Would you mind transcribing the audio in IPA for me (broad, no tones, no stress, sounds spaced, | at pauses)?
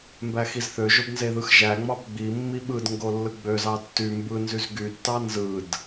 m b æ x i z θ ø ʒ o b n z e ð ɯ x ʒ æ ŋ͡m ɑ b ɡ͡b i mː i ɓ ɯ d ŋ ɡ o lː ɯ ɡ͡b ø z ɑ tː y m b ɯ n z y z ɡ y tː ɑ n z ɯ d